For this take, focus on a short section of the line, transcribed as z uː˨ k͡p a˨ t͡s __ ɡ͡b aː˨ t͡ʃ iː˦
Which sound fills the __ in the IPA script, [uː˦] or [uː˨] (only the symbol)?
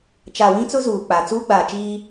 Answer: uː˦